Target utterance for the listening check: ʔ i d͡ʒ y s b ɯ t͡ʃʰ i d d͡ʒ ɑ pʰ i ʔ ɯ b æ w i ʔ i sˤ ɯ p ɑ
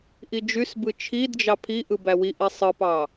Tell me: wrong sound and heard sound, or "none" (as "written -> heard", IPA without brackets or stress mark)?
none